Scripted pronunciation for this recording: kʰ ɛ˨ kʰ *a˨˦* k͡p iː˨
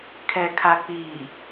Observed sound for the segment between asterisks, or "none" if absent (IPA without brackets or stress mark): a˨